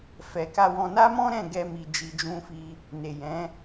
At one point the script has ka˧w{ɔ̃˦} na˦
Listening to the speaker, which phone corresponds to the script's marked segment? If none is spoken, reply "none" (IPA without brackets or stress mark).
ɔ̃˧